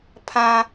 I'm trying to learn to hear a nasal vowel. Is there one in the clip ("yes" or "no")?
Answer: yes